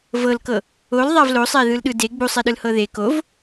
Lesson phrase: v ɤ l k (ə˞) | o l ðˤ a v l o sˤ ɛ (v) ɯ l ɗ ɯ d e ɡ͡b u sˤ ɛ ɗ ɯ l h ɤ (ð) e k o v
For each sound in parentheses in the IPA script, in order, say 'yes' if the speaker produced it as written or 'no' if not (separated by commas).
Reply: no, no, yes